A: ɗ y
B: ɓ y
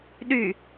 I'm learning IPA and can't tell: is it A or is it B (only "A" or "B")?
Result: A